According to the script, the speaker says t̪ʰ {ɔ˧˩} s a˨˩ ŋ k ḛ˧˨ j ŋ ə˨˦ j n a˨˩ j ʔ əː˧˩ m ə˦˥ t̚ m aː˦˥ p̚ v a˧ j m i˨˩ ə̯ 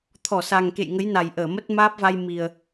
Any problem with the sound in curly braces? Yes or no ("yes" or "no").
no